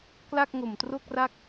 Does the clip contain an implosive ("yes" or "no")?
no